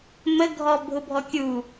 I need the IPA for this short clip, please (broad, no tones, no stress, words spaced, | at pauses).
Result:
məɡʱɔ bʱʊbʱɔkʲu